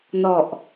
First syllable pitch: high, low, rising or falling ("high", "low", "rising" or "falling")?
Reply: low